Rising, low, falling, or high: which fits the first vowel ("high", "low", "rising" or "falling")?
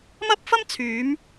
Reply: high